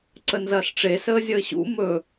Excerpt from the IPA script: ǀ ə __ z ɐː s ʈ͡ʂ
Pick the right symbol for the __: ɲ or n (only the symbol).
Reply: n